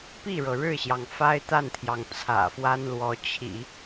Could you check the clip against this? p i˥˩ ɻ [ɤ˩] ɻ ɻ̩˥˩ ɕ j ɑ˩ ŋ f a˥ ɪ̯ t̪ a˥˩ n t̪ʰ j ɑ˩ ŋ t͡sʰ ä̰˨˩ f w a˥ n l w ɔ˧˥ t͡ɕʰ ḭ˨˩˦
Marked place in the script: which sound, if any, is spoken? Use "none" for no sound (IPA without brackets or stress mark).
ɤ˩